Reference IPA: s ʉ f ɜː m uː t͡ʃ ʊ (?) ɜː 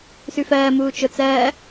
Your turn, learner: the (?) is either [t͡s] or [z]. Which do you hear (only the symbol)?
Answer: t͡s